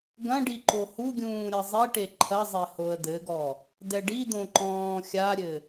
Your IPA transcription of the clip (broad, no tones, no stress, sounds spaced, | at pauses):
ɡ ɐ̃ ɖ i ǃ o h u ɡʲ ũː ɾʲ ɐ zˤ i ʈ e ǃʰ ɐ zˤ e h o ə̯ d̪ ɘ ɡ ɔ | d ɛ ɖ i d̪ õ ǃ ɔ̃ː xʲ a ɾʲ ɘ